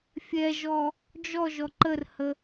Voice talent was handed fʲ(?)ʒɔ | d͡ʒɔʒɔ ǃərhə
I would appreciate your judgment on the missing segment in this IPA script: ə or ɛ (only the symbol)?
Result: ɛ